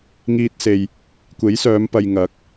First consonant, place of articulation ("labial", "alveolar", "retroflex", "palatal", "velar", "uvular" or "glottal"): velar